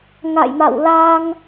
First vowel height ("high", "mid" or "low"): low